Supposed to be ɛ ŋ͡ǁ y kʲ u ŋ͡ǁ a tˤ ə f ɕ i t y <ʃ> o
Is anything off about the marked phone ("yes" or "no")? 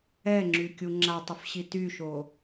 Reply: no